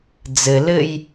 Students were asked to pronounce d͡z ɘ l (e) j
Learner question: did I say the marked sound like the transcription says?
no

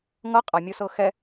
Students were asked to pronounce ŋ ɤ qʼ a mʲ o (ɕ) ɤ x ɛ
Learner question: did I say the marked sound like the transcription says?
no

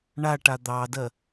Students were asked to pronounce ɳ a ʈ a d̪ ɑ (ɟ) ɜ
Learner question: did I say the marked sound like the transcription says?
no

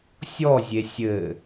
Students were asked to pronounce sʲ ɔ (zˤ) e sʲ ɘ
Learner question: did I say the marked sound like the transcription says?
no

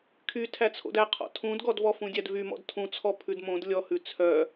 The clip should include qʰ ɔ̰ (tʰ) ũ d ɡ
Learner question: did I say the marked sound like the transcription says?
yes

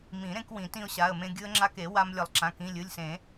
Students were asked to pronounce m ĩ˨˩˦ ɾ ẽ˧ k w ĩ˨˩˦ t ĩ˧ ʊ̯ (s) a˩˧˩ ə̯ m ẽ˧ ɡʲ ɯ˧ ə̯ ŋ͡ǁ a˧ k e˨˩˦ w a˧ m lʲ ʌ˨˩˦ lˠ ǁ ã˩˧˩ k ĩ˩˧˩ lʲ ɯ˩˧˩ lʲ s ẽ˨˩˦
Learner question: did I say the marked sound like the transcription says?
no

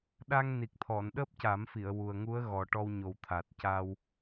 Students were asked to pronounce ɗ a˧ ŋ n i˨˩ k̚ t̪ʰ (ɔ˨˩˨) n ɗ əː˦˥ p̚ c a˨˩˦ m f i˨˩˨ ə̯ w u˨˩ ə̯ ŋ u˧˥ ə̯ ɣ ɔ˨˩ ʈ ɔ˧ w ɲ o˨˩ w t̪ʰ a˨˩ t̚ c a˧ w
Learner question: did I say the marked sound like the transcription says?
yes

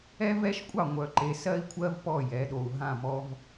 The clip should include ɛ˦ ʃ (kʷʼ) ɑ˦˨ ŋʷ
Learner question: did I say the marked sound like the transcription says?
yes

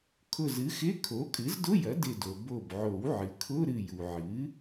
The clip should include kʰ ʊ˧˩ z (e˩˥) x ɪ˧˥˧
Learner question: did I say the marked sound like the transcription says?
no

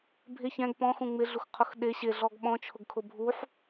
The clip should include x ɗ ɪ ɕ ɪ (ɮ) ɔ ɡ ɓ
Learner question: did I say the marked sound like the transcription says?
yes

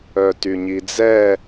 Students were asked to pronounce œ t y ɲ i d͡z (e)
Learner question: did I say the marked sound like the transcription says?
no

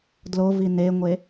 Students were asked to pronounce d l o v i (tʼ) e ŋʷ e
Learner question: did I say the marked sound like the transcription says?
no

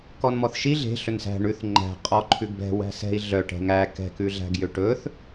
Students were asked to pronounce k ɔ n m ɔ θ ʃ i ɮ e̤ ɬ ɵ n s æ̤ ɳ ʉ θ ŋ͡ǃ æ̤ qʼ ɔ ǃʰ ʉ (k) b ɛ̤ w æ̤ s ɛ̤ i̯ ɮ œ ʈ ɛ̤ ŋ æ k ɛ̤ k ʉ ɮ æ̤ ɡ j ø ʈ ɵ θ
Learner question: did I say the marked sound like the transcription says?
no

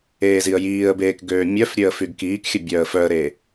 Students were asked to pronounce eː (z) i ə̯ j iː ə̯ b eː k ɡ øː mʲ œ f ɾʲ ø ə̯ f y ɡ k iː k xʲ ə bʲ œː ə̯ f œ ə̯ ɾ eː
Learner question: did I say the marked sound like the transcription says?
yes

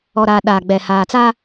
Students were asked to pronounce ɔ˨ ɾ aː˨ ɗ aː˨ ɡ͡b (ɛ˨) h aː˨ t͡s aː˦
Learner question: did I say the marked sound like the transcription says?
yes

